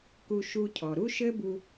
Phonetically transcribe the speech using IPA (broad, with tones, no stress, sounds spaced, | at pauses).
k u˧ ʃ u˧ cʰ ɔ˨ ɾ u˦ ʃ ɘ˦ b u˧